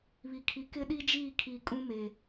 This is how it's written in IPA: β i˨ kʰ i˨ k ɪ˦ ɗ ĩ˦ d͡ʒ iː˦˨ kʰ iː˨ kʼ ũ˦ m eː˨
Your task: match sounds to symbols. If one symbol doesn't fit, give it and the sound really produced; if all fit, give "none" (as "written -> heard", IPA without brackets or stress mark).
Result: ĩ˦ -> i˦